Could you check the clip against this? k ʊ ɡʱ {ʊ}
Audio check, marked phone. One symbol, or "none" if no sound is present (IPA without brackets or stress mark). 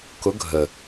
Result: ə